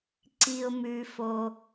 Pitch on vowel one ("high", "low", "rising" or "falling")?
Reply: low